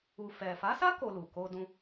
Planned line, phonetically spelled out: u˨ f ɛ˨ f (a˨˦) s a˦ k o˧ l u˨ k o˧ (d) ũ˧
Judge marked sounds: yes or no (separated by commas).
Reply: yes, yes